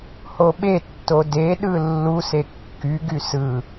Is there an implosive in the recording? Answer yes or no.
yes